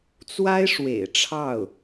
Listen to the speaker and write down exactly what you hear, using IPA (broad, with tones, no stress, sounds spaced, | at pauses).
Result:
t͡s w a˥ ɪ̯ ʂ w ḛ˨˩ ɪ̯ ʈ͡ʂʰ ɑ˥˩ ʊ̯